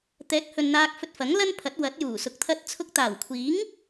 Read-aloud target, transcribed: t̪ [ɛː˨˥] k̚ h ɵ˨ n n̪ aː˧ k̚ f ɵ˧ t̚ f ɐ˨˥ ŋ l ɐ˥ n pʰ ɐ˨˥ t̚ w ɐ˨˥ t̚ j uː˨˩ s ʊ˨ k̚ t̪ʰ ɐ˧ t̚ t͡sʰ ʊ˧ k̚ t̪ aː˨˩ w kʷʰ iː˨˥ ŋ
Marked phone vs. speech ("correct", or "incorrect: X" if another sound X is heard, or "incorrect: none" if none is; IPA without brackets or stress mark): correct